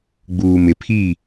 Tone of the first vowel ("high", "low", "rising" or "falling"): low